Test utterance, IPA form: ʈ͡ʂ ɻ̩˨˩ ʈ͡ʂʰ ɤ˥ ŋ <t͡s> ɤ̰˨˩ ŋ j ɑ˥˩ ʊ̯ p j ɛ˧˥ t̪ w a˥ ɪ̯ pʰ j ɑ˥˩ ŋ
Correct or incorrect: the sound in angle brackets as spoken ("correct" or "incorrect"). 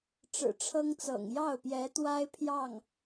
correct